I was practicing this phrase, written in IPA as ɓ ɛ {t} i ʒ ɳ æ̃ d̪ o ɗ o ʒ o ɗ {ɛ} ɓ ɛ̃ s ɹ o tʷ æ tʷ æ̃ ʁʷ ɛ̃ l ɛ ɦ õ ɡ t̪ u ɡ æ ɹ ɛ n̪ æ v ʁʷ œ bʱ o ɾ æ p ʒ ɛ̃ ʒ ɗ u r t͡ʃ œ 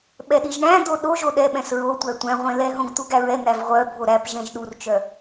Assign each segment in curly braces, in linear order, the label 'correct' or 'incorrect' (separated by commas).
incorrect, correct